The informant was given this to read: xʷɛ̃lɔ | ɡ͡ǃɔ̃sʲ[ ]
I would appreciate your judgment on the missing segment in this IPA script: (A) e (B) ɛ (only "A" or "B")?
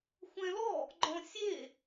A